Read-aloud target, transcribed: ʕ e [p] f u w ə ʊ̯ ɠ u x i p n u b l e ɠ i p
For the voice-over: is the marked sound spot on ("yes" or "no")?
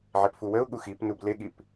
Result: yes